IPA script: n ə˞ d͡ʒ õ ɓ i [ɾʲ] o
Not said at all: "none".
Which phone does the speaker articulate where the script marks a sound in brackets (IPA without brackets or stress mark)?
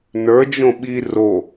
r